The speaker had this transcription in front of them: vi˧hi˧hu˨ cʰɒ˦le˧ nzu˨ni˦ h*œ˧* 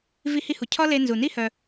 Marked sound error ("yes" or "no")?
no